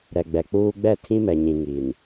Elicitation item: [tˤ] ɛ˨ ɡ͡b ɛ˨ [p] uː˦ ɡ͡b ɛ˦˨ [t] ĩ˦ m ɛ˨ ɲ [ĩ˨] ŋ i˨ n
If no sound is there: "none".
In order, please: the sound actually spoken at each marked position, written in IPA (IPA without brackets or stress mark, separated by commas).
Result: ɾ, k͡p, tʰ, ĩ˨